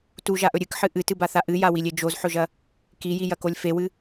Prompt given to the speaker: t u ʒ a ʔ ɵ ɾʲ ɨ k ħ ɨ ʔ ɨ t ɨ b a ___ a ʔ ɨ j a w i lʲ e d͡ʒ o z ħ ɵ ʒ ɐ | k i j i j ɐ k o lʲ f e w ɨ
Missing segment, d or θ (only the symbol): θ